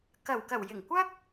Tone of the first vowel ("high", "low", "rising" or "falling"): low